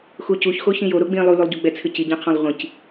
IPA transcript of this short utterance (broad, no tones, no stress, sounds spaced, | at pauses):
x u c u ç x o ç ĩ j o ɾ o ɡ͡b ĩ lˠ u l u lˠ ɟ u ɡ͡b ɛ t͡sʰ ɨ c i ɟ ɛ̃ qʰ ɔ̃ lˠ ʁʷ ĩ c